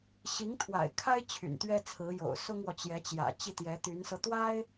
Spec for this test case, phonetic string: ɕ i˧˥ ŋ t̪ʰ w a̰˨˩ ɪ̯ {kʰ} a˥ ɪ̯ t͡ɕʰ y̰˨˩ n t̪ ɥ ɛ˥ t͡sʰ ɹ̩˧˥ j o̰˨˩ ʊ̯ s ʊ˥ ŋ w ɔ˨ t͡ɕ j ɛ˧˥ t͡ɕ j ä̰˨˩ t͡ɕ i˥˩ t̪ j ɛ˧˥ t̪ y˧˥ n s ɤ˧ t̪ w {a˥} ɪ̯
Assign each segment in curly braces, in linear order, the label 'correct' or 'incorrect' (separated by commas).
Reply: correct, correct